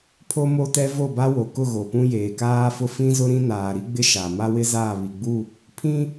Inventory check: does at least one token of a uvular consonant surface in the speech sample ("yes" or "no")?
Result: no